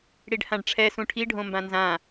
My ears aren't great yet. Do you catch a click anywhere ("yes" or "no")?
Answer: no